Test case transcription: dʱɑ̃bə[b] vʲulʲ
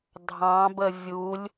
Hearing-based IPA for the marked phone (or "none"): none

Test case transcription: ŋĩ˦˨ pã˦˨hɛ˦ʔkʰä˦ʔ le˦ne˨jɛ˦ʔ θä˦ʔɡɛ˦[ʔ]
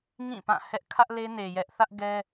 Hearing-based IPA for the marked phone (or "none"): none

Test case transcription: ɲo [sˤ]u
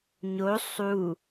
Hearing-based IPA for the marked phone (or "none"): sˤ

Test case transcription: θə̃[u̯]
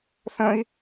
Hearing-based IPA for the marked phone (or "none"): i̯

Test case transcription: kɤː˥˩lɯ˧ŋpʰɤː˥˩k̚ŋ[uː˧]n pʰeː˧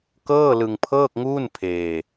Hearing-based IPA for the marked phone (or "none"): uː˥˩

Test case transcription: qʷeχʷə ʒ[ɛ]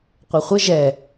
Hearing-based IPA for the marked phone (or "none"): ɛ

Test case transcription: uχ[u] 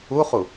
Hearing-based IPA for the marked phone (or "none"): u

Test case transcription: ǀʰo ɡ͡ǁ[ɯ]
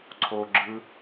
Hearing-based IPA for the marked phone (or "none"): ɯ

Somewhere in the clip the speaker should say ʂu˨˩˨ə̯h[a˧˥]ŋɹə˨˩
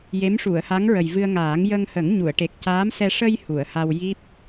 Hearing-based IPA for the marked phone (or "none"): a˧˥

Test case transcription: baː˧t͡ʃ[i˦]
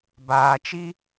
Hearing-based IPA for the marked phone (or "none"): i˦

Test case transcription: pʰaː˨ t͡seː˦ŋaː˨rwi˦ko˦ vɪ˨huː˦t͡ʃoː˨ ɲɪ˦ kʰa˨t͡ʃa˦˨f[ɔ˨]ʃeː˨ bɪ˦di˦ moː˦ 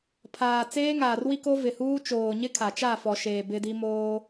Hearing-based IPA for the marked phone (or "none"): ɔ˨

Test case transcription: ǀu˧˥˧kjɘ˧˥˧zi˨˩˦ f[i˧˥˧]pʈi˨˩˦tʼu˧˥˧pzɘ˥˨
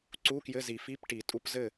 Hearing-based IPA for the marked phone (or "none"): i˧˥˧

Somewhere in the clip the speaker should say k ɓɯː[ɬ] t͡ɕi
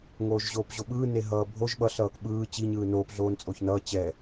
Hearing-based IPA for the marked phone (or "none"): none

